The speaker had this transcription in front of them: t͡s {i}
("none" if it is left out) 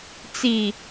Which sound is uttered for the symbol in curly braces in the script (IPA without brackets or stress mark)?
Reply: i